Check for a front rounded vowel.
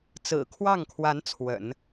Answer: absent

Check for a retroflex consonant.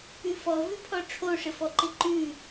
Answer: present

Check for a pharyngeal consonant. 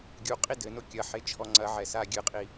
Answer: present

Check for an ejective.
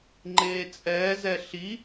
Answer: present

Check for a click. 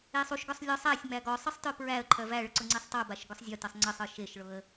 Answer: present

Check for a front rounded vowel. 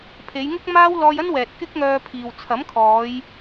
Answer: present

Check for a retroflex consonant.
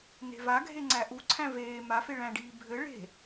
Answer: present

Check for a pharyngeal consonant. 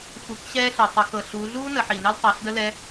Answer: present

